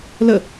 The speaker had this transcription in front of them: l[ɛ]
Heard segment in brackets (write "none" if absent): ə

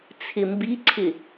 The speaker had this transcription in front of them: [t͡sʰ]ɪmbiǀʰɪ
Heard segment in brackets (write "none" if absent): t͡sʰ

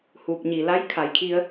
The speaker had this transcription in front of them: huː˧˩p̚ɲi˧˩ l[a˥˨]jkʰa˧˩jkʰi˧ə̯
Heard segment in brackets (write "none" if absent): a˧˥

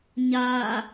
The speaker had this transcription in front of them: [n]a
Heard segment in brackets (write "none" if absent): ɲ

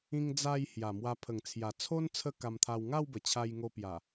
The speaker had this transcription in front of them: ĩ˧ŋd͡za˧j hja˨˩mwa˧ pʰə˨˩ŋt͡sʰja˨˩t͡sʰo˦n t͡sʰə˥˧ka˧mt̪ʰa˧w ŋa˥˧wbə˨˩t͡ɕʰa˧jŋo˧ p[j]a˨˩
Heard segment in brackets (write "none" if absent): j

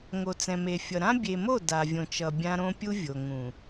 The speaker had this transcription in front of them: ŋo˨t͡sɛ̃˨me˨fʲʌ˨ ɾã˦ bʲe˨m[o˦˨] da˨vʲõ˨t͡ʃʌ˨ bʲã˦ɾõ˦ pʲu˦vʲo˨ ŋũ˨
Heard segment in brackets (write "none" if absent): o˦˨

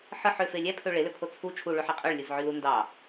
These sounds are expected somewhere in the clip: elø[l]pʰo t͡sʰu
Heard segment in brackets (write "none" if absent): none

